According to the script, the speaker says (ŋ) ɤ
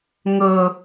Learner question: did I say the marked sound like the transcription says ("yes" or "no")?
yes